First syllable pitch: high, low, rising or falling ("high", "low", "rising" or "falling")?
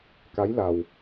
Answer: rising